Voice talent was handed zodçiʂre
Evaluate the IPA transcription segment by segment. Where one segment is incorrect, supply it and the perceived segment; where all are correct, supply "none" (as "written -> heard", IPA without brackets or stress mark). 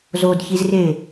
ʂ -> z